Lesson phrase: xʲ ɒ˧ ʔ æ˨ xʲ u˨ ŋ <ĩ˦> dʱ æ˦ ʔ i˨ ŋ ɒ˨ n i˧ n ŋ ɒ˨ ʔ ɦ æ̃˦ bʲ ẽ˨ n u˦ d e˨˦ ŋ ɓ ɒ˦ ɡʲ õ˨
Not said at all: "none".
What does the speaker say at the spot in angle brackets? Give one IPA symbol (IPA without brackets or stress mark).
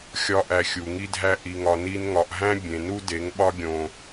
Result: i˦